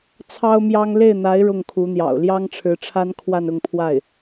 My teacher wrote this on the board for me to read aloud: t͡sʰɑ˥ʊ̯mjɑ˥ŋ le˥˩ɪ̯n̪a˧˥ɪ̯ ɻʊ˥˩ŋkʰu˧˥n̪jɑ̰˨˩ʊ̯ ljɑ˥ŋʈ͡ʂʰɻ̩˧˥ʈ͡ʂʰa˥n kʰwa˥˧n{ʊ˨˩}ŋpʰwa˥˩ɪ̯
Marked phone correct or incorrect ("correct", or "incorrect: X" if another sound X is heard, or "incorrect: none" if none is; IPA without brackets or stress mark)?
incorrect: ʊ˥˧